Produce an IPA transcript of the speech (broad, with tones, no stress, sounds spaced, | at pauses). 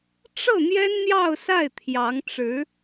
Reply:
ʈ͡ʂ ɤ˥˩ n̪ j ɛ˥ n n̪ j ɑ˥˧ ʊ̯ s a˥˩ ɪ̯ t̪ʰ j ɑ˧˥ ŋ ʈ͡ʂ ɻ̩˧˥